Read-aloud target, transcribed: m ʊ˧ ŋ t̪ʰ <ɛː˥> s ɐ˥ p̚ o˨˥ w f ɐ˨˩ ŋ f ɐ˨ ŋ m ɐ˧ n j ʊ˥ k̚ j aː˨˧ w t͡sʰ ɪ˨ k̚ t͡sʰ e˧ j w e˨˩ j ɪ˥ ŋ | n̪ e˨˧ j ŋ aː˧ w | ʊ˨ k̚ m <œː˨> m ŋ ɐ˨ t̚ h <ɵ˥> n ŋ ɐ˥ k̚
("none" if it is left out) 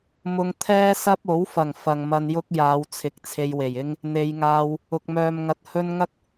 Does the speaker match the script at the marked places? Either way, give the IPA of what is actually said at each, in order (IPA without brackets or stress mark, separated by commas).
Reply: ɛː˥, œː˨, ɵ˥